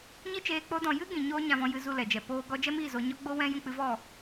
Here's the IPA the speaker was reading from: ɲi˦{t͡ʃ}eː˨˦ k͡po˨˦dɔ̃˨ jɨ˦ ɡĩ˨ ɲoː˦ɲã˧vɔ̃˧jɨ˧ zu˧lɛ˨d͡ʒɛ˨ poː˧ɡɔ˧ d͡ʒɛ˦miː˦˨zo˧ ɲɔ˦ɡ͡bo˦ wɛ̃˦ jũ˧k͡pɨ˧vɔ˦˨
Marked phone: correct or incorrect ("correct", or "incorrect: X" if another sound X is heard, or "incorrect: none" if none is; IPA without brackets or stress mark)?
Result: correct